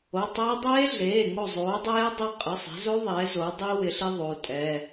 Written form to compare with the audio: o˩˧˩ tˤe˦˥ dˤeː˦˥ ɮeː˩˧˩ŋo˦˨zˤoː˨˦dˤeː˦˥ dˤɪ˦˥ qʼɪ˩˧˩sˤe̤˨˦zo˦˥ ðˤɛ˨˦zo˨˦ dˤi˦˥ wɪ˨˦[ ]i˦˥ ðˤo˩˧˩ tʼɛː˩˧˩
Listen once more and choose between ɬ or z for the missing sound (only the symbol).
ɬ